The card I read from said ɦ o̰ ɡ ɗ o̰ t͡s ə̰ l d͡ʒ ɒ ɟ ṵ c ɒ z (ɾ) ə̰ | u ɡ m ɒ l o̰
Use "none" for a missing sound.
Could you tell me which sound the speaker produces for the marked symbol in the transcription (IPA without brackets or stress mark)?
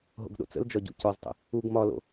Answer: tˤ